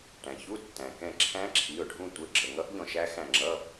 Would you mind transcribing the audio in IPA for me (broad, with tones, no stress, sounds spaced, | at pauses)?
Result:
ʈ æ̃˩ ç u˧˥˧ tː æ̃˩ k ɛ̃˦˨ ǁʰ æ̃˦˥ ǁʰ i˩˧˩ ʊ̯ ɖʱ ũ˦˨ tʷ ə˩˧˩ ɡ͡ǁ ə˩˧˩ ŋ ʌ˦˥ ʔ ʎ ɔ̃˦˨ ʃ æ˦˥ x æ̃˦˨ ŋ͡ǁ ʌ˧˥˧